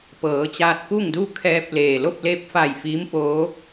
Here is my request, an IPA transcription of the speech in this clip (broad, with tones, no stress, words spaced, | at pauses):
pɤː˩˧t͡ɕaː˧t̚ku˥˨ŋdu˥˨ kʰɛː˧p̚leː˩ lo˥˨p̚leː˧p̚fa˧˩j fiː˧˥mpoː˧˥